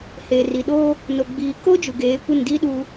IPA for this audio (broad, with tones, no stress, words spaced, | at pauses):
heː˨ri˨ɗoː˦ | no˨ɡ͡biː˨ko˦ d͡ʒu˨ɡeː˨˦kʷɪ˦˨n diː˦ɗuː˦